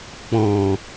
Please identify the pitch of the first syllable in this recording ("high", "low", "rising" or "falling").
low